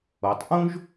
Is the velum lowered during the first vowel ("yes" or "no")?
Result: no